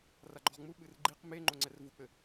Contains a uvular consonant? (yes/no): yes